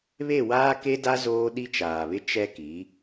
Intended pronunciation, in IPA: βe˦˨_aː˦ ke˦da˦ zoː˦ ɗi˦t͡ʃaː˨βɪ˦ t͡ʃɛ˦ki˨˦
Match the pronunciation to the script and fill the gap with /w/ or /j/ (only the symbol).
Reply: w